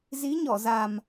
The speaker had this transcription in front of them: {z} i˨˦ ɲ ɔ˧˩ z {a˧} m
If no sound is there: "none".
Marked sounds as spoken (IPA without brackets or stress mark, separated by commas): z, a˨˩